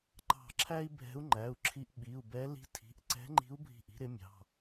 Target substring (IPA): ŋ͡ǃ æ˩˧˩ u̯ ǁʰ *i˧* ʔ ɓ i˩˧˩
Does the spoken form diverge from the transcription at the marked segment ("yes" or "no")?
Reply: no